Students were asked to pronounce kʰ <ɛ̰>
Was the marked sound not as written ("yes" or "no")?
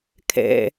no